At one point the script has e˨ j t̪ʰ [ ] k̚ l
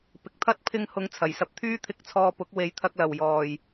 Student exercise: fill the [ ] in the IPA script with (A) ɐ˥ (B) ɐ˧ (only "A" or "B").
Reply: B